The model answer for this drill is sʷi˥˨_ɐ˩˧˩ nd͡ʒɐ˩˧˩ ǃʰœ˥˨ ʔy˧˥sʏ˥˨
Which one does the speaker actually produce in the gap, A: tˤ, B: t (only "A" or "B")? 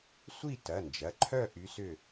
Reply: B